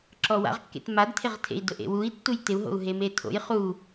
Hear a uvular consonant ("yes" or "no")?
yes